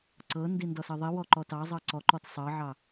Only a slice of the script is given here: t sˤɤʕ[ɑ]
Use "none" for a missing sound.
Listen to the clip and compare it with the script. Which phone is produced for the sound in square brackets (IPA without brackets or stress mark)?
ɑ